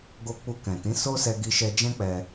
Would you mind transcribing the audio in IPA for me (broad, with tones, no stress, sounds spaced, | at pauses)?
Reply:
ɡ o˧ k͡p u˧ k ɛ̃˨ t ĩ˨˦ s o˦ s ɛ˧ ɡ i˧ ʃ ɛ˧ d͡ʒ ɛ̃˦ k͡p ɛ˧